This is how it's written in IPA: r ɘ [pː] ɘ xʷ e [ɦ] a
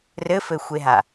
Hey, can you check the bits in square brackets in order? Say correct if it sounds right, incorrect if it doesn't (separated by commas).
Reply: incorrect, correct